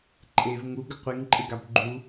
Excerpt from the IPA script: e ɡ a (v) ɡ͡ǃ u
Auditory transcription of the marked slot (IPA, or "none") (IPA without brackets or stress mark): b